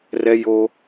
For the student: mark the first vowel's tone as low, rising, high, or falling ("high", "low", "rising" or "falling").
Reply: high